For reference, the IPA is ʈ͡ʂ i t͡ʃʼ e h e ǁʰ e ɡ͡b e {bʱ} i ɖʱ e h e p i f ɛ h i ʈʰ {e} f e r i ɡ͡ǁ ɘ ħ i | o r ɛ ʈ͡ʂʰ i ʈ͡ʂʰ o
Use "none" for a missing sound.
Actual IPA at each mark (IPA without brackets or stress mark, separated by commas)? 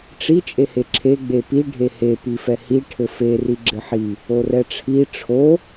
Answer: p, ɘ